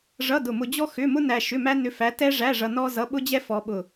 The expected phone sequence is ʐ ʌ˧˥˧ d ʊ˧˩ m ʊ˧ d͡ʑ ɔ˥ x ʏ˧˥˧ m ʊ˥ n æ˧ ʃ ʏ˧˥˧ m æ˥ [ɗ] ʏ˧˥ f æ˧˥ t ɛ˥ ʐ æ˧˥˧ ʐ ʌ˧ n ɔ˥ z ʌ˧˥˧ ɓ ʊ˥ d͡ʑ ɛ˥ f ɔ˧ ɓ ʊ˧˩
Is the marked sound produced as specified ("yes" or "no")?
no